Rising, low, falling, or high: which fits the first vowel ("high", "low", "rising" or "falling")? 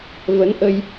rising